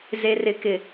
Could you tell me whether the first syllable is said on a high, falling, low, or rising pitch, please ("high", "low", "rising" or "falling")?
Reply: low